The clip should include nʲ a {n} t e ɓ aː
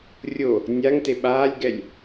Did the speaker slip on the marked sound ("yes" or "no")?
yes